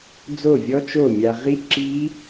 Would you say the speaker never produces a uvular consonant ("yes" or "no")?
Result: no